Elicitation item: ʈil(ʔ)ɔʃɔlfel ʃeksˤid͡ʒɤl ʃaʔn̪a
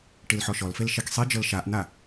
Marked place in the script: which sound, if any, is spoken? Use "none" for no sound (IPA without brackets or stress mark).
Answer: ħ